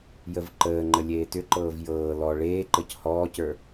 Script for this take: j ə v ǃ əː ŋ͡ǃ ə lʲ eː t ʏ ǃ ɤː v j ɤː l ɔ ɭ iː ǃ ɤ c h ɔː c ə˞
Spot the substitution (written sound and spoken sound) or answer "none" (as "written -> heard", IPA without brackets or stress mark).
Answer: iː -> eː